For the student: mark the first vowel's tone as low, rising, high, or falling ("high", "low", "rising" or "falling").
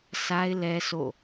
high